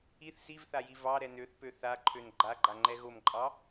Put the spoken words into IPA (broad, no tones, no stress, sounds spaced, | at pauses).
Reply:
i θ s i v θ a j i v ɑ ɾ ɛ n ø θ p ø θ a ǃʰ ø n ɡ͡ǃ a ɡ͡ǃ a ŋ͡ǃ ɛ ɣ o m ǃʼ ɑ